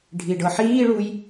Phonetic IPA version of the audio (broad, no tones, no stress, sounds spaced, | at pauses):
ɖʱ i ɖ ɤ ħ iː ɭ u j